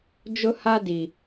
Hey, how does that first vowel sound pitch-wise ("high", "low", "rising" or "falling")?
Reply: high